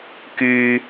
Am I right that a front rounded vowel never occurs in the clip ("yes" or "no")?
no